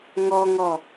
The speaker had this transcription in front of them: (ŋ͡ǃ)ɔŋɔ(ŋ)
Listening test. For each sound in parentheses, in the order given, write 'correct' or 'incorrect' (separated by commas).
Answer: incorrect, incorrect